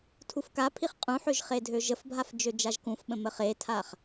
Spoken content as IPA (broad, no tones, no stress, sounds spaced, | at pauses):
tʰ u f k a pʰ i χ qʼ ũ ħ ø ʒ χ e dʱ ø ʒ ə f bʱ a f d͡ʒ ø d͡ʒ a ʒ k ũ f ɓ ə̃ m ə χ e tʰ a χ